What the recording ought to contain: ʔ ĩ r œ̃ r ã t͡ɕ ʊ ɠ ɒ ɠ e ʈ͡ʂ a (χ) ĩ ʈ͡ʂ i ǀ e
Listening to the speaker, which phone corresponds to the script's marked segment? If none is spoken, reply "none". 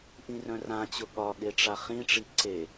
χ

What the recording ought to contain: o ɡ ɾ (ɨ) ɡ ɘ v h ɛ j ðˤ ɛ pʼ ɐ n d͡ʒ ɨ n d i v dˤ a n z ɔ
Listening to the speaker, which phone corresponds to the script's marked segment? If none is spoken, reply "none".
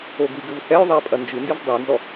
i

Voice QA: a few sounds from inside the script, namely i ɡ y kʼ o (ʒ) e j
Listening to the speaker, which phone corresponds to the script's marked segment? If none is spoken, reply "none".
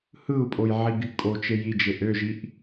t͡ʃ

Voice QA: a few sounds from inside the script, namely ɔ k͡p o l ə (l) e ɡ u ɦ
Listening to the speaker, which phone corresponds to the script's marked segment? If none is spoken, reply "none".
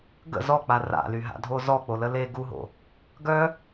l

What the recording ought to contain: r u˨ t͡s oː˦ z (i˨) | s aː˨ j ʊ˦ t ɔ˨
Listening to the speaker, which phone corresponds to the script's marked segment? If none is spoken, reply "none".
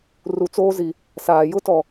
i˨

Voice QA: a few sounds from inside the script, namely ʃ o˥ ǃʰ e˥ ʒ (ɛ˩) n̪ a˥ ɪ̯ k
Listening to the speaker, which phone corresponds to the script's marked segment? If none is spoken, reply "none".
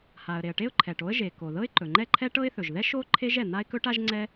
ɛ˩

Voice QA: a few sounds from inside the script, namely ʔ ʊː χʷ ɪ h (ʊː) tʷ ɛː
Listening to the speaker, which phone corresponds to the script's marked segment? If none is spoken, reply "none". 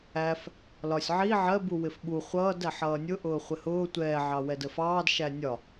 ʊː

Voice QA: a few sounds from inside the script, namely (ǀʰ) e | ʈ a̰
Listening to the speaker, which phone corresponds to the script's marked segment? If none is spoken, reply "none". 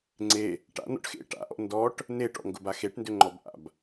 ŋ͡ǀ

